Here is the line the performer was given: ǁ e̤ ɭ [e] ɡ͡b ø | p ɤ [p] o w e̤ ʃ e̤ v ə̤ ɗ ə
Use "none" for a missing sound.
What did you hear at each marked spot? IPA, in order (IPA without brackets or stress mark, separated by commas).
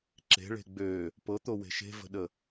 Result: e̤, t̪